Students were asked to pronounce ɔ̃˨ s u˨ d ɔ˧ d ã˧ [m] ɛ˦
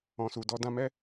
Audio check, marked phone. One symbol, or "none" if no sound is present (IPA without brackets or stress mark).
m